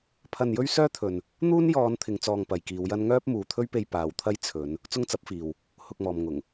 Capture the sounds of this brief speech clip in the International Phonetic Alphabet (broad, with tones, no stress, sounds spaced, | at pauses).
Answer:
pʰ ɐ˧ n j ɵ˥ ɥ s œː˥ t̪ʰ ɵ˨ n | n̪ uː˥ n j ɔː˨˧ n t̪ʰ ɪ˨ ŋ t͡s ɔː˧ ŋ p ɐ˨ j k iː˨˧ w j ɐ˥ n ŋ œː˥ p̚ m uː˨ t̪ʰ ɵ˥ ɥ p e˧ j p aː˨ w t̪ʰ ɐ˥ j t͡sʰ ɵ˨˧ n | t͡s ʊ˥ ŋ t͡s ɐ˨˥ p̚ f iː˨ w | h ʊ˧ k̚ m ɔː˨ m ŋ ʊ˨˩ ŋ